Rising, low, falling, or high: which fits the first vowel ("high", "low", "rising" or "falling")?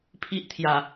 high